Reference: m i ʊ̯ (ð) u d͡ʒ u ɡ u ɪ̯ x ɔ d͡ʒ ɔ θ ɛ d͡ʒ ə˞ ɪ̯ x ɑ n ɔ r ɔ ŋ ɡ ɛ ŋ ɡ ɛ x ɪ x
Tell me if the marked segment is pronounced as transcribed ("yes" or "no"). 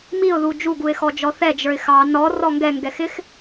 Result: yes